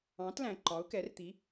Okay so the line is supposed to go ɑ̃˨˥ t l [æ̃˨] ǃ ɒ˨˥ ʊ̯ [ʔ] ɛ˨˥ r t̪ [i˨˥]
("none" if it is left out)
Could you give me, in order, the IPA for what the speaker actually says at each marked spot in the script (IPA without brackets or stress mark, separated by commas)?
æ̃˨, k, i˨˥